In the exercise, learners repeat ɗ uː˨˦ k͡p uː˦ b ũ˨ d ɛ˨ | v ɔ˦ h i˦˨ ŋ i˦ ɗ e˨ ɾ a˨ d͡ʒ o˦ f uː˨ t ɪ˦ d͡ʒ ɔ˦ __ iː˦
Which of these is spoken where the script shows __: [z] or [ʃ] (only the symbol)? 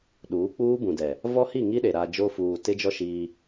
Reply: ʃ